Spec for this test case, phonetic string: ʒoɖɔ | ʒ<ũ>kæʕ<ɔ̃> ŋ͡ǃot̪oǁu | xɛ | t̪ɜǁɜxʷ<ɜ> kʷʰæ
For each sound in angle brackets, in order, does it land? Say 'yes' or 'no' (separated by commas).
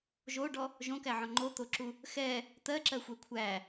no, yes, no